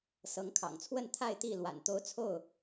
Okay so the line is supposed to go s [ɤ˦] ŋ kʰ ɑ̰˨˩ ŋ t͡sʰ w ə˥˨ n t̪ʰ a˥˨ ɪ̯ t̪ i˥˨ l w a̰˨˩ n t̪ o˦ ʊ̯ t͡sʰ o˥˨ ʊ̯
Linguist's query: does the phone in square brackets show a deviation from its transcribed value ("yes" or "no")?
yes